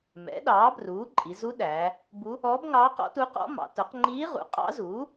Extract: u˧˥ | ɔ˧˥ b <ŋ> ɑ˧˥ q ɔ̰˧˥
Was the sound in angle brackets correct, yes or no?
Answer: yes